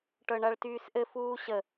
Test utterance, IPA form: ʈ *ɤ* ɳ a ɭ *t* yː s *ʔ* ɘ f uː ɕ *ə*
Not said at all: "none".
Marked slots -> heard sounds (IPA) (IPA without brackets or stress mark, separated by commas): ɤ, t, ʔ, ə